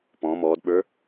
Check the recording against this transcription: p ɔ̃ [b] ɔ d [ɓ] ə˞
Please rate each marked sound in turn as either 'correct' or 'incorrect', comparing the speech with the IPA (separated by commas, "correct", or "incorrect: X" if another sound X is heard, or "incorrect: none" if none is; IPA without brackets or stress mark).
incorrect: m, correct